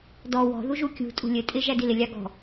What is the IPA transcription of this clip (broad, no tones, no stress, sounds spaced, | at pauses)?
d ɔ w ɔ̤ ð u ʒ u kʲ ṳ tʼ ṳ lʲ ɘ tʼ ɪ ʒ æ d i l ɪ lʲ ɑ ɡ ɔ̤